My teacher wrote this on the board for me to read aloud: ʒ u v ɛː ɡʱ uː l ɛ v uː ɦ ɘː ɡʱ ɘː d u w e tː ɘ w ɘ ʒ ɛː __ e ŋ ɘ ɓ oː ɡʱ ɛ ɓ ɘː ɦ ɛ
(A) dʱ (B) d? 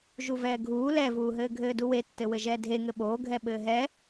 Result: A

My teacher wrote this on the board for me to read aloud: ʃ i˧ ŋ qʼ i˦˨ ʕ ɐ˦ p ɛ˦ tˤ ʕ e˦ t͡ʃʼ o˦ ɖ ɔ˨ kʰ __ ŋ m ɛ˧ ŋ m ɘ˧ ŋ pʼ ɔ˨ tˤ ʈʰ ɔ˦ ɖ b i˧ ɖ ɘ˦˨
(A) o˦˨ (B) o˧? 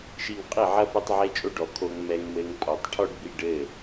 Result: B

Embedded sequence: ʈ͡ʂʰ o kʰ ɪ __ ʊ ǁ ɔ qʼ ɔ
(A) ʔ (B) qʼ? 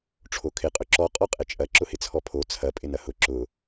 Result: B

